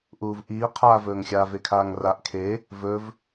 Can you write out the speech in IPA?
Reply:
ʔuːvʔiː qʰaːvɵːŋxʲa vekʰaːŋraʔ kʰe | vɵv

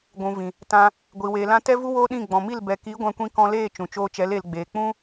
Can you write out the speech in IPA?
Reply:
ɡʷũ˨ vĩ˨ | tã˧ | ɡʷi˨weː˨lã˦ tɛ˦vu˦ woː˦ɗĩ˦˨ ɡ͡bɔ̃˨mi˦˨l bɛ˨ki˨˦ ɡʷã˧kʷĩ˧ kɔ̃˧leː˦˨ t͡ʃũ˨t͡ʃoː˧t͡ʃɛ˨˦l e˨lɡ͡beː˨ k͡pũ˦

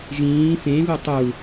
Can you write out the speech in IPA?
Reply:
ʒĩː fẽ ɣutˤu

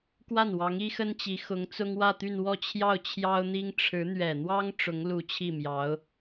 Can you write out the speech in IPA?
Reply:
kwa˥˩nwɑ˧˥ŋ i˥xə˥nt͡ɕi˧˥ xʊ˧˥ŋt͡sʊ˥ŋwä˥˧t̪y˥˧n wɔ˥˧t͡ɕʰjɑ˥˩ʊ̯ t͡ɕʰjɑ˥ʊ̯n̪i˥ŋ ʈ͡ʂʰɻ̩˧˥n̪ɥɛ˨˩n̪wɑ˥ŋ ʈ͡ʂʊ˧˥ŋlu˧˥ t͡ɕʰi˥˩mjɑ˧˥ʊ̯

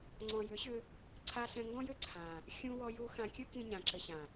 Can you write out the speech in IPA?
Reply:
ŋ͡ǀɔ̃˨jʏ˨˦ɕʏ˧ | ǀʰa˧ɬɛ̃˧ŋɡɔ̃˦jʏ˦ ǀʰã˨ | xʲũ˧wɔ˧ju˧ xã˧kʲɯ˦kĩ˧ ɲã˨ǁɘ˨ɕã˨

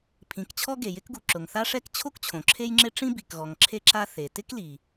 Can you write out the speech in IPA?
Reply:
pʰĩ˩kt͡ɕʰɔ˥ ɡe˩jɪ˥kɡu˩ ǁʊ˩ŋθa˥ʂɛ˥k t͡ɕʰo˥kt͡ɕʰõ˩ ǁʰe˥jŋ͡ǁɪ˥ ʈ͡ʂĩ˥bi˩kɣɔ˩ŋ ǁʰe˥ǁa˥ θe˩tɪ˥kli˩

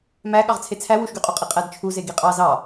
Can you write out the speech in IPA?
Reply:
mæ ɠɑʁt͡sʰet͡sʰæ wuʃɡyqʼuqʼi qʼædt͡ʃʰuze ɡiqʼɑ zɑ

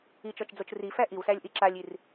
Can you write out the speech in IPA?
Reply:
it͡ʃɔt͡ʃd͡zot͡ʃ rifæ ʔiwsælʲʔi ǁalʲir

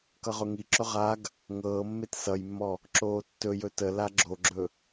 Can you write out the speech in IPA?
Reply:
kʌʁʊŋiǁɵ ʁaɡ | ŋɤːmːet sʌjmːɔ | ǁoːtːɵjɵ təla ɡ͡ǁoɡ͡ǁɵ

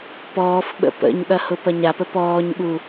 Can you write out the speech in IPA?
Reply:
pɔːf ɓə̰pə̰ɲɠɐ hʊpɐɲapə pɔːɲɠu

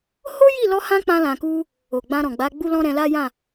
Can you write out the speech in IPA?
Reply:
ho˦ji˦˨lɔ˧hã˧ k͡pã˧lã˨ku˧ | o˨ɡ͡bã˧ɾɔ̃˨ɡ͡ba˨˦ ɡ͡bu˦lɔ̃˦ɾɛ̃˧la˦ jã˦˨

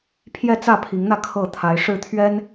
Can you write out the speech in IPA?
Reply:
pʰjɛ˥˨t͡sä˥˨pʰi˨˦ŋn̪ä˧ kʰɤ˥˨t̪ʰa˨˦ɪ̯ ʂɻ̩˥˨t̪ʰɥɛ˦n

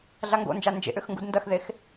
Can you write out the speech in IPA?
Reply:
ɮaŋɡo̰nd͡ʒa nd͡ʒḛʔʏx ŋɡudndɐxðex

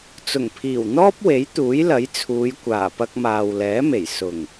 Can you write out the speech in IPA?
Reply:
t͡sʊ˨˩ŋpʰiː˨˩wn̪ɔː˥p̚we˨˥j t̪uː˨˥jlɐ˨˥jt͡sʰuː˨˧j kʷaː˨˩pɐ˧k̚maː˨w lɛː˨˥me˨˩j sʊ˨˩ŋ

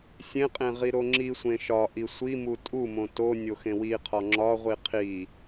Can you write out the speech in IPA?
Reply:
sʲẽqʼẽ ʁiɾoŋ͡ǁisʷẽ ʃɒʔi sʷi mutʼumõ to nʲoxẽwiqʰɒ ŋ͡ǁɒʁʷi qʰi

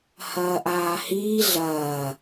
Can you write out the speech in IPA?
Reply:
hɐːʔaːhiː ɮɐː

